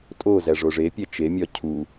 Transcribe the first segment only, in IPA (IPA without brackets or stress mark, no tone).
tʼ